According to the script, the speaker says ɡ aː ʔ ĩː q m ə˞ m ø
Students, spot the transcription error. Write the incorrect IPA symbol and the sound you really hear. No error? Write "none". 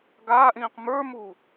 ø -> u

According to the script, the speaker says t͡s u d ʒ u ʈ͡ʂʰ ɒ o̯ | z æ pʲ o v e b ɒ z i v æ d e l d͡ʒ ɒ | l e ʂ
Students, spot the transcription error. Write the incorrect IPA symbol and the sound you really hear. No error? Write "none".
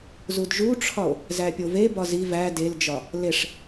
t͡s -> z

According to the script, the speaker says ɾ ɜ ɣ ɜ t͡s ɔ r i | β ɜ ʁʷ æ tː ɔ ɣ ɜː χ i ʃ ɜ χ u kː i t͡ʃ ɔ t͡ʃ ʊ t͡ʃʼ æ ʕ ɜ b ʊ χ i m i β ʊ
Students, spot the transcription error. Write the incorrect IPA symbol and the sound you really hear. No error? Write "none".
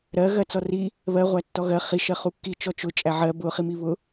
ɜː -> ɜ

